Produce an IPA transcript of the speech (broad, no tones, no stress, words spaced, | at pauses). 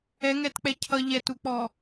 ɛŋɛtk͡pɛ cʰʌ ʎɛtuk͡pɔ